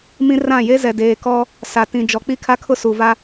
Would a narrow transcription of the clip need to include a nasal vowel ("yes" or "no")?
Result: yes